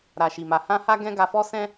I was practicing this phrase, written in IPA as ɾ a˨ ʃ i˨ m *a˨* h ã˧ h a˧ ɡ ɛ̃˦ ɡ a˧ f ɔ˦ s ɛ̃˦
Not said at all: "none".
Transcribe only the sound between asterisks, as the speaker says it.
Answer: a˨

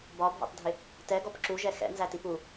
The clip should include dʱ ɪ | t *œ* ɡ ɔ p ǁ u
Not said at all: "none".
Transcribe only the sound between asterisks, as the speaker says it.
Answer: ɛ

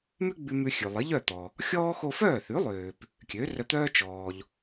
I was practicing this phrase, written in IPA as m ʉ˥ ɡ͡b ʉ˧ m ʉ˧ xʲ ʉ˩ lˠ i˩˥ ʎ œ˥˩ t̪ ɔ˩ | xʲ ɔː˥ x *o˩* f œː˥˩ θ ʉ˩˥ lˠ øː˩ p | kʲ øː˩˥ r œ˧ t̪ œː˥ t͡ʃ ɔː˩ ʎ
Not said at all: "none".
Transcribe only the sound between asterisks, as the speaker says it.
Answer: o˧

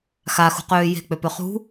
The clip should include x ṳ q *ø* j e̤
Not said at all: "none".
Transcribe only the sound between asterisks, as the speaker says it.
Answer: øː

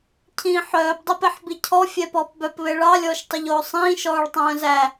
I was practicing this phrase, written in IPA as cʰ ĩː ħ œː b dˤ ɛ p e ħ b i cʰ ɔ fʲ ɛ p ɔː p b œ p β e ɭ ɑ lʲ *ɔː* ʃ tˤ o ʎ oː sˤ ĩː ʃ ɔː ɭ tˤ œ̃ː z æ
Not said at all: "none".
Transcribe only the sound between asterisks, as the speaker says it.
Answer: ɔː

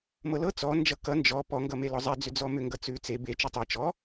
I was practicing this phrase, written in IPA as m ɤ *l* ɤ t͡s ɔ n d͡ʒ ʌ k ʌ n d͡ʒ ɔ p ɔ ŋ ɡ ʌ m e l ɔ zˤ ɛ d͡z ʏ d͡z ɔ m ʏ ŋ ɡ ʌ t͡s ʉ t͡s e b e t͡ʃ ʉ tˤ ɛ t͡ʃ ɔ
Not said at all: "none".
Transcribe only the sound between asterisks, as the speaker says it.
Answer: l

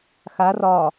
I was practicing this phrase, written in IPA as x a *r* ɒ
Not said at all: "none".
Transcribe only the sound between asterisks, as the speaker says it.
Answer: r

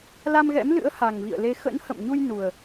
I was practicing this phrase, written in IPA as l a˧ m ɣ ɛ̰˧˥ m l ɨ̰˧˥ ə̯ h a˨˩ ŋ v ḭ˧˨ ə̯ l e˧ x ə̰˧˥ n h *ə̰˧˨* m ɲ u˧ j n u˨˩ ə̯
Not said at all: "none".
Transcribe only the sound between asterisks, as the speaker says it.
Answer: ə̰˧˨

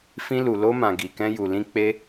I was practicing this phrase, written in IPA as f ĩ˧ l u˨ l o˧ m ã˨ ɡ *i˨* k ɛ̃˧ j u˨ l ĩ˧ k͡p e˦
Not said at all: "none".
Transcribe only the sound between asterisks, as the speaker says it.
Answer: i˨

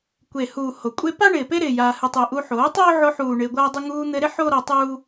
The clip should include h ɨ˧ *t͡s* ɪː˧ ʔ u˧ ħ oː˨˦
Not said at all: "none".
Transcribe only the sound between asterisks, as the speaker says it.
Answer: tˤ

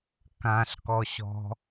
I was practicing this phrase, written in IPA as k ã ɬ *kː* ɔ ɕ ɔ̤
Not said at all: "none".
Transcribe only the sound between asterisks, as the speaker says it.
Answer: k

